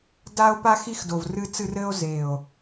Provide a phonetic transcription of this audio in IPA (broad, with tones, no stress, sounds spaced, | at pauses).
d a˧ o̯ p a˧ x i˧ x d o˨˩ v r ɨ˧ t͡s ɨ˧ r ɘ˧ o̯ z e˨˩ o̯